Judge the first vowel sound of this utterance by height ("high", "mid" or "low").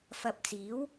low